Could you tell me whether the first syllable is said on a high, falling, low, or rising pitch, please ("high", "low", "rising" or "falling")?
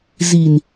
low